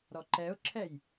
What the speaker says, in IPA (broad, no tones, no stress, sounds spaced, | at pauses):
ɾ ɔ ǃ ɛ ʊ̯ ǁʰ ɛ j